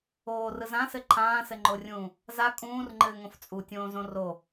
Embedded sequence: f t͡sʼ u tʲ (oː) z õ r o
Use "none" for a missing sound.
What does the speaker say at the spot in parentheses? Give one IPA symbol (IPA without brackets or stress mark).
õː